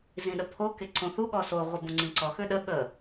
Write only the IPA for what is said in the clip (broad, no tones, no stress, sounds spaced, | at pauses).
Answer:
z ĩ ɗ ə pʰ o k e ǀ õ θ u ɠ ɔ s o ʁʷ i b õ ŋ͡ǀ ĩ ǀ ɔ x ø ɗ ə ɠ ə